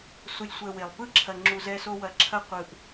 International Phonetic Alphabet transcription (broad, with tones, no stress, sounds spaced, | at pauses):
s u˨ lʲ sʷ ɛ˨ w e˨ lˠ p ɯ˦˨ ǁʰ ɐ˨ ŋ͡ǁ u˨ z ɛ˦ s o˦ w ɐ˨ ǁʰ ɐ˦ qʷ ɯ˨ ʔ